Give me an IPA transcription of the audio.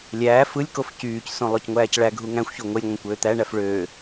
lʲ æː f ɯ lʲ k o f c yː c s õ lˠ o c ŋʷ æː c ɭ æ ɡʱ u ŋ æ̃ xʷ ç o ŋʷ e lʲ ŋʷ ɑ̃ kʷ øː t̪ æ ɳ æ f ɭ øː

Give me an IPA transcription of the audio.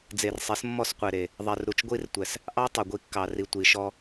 d͡z e˨ r sˤ e˨˦ s mː ɔ˦˨ s qʷ e˨ ɾ e˨ | ðˤ ɛ˨ r ɾ u˨ t͡ʃ ɡʷ i˦ r tʷ ɛ˨ s | ʔ ɑ˦ tˤ u˨ ɡʷ i˦ kː ɑ˨ r i˨ tʷ i˨ ʃ ɔ˦

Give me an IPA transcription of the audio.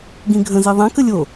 ɡ ĩ ɡʱ ə̃ z i ðˤ ã k ə lʲ o

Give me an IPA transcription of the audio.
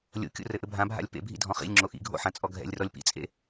lʲ o̰ kʲ o̰ r ɘ ʔ ɘ bʱ ã bʱ a̰ lʲ p ḛ bʱ ḭ dʱ ɔ̃ χ ḭ lʲ ŋ͡ǁ o ʔ ḭ ɡʱ o̰ ħ ã t͡sʼ ɔ ɡʱ ɛ̰ lʲ r ɔ lʲ p ḭ t͡sʼ ḛ

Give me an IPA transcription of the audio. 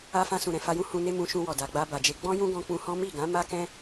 a˦ f ã˧ s ũ˨ ɾ ɛ̃˨ f a˧ j ũ˦ h ũ˧ n e˦ m ũ˧ ʃ ũ˧ w ɔ˨ d a˨ ɡ͡b a˧ b a˨ d͡ʒ e˧ ɡ͡b ɔ̃˦ j ũ˦ ɡ ɔ̃˧ k͡p ũ˧ h ɔ̃˦ m i˦˨ ɡ ã˨˦ m a˦ k ɛ̃˦

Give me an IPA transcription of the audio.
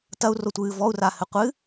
t ɐ u̯ r o tʷ ɨː v ɔ u̯ r a h ɘ qʷ ɨ

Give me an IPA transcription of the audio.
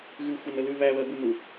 ɣ ʉ xʷ ɛ n ə l ʉ β æ β ɜ b u n u

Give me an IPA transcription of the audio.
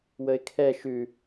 w ə ɪ̯ kʰ ɛ ʃ ʉ

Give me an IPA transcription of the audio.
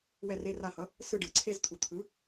w ɛ˦˨ r e˧˥˧ r a˦˨ h ʌ˩˥ | s ɯ˦˨ ɖ ɯ˨ ǀʰ e˧˥˧ z t̪ʰ u˨ t̪ʰ ɯ˩˥

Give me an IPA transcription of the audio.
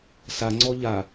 s a ŋ͡ǀ ɔ ʎ a

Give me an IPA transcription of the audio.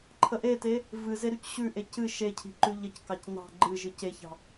ǃʰ ə ʔ e t e | v ɨ z e ɾ ʉ c ɕ ʉ ʔ e c ɨ ʃ e cʰ i̤ ǃ ʉ ʎ ə c k ɑ c n ɑ̤ ɡ͡ǃ ɨ ʒ ɨ c e ç ɑ̤

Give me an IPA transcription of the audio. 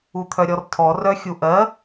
u t̪ʰ œ ɾʲ ɔ r tʰ ɔ r œ xʲ u ʔ ɜ

